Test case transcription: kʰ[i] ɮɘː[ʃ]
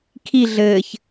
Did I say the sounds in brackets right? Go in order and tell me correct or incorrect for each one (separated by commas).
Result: correct, incorrect